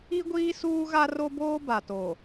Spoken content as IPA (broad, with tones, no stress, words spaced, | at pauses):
i˦ɡʷiː˦ suː˦ɣa˦ro˦boː˦ ba˨to˨